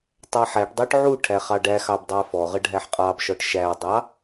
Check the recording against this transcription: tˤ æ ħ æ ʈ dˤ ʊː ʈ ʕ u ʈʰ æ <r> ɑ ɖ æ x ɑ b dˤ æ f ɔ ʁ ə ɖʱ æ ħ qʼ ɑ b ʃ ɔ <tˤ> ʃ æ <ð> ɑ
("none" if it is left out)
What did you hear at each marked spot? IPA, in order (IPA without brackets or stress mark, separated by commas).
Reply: χ, ʈ, dˤ